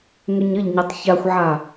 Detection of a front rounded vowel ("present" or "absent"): present